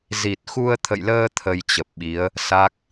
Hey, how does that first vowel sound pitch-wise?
low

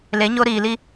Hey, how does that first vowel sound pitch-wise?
rising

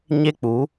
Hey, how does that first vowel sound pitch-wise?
high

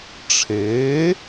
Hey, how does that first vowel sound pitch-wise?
rising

